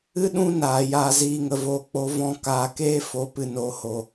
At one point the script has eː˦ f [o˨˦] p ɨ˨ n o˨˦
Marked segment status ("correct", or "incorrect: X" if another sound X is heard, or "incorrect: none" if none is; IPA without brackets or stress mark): correct